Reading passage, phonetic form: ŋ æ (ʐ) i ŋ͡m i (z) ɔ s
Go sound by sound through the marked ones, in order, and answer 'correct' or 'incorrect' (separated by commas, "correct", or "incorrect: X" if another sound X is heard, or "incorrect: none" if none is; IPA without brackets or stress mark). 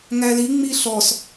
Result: incorrect: l, incorrect: ɬ